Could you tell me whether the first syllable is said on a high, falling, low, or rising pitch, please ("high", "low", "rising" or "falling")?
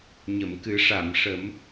low